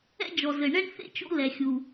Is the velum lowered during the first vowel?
no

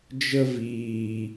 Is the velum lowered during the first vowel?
no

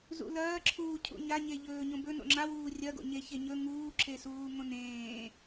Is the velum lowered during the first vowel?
no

